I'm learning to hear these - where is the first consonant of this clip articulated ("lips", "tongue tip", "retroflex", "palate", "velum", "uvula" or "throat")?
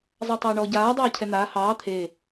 tongue tip